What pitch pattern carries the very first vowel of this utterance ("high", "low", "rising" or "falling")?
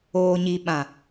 low